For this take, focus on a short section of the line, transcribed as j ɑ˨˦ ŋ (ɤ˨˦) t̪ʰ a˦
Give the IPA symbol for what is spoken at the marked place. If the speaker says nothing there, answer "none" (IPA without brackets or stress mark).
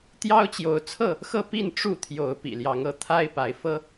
ɤ˨˦